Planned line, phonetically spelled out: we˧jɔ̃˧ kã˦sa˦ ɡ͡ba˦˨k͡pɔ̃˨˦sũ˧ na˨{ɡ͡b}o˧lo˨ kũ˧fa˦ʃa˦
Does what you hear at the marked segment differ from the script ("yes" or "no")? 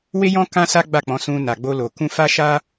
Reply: no